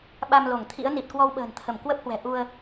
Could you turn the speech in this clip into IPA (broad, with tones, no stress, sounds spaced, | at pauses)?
ɓ a˧ m l o˧˩ ŋ t̪ʰ ḭ˧˥ ə̯ n i˨˩ t̚ k w ɔ˧ w ɓ ə̤ː˨˩ n t̪ʰ ə˧˩ m k w ə˦˥ p̚ h w ɛ̤˨˩ ʔ u˧ ə̯